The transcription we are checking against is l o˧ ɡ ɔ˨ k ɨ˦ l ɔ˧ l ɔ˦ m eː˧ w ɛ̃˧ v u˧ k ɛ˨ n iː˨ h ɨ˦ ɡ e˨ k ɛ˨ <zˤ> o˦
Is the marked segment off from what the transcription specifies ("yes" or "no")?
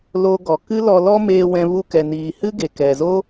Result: yes